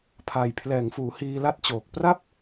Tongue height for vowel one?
low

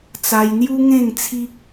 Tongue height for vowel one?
low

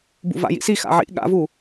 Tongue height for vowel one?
high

